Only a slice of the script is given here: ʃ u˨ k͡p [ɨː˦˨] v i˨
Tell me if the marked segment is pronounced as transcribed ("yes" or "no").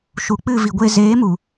no